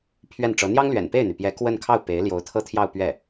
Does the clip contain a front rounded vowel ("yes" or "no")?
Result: yes